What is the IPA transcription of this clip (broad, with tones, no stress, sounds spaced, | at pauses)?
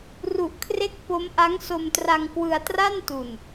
r u˨˩ ʔ kʰ r e˦˥ k̚ p o˦˥ m ʔ a˦˥ ŋ s o˧ m t r a˧ ŋ k w ɯ˧ a̯ t r a˥˩ n t u˨˩ n